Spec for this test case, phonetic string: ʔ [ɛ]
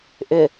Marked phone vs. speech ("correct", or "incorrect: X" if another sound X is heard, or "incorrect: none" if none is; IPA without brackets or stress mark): incorrect: ʏ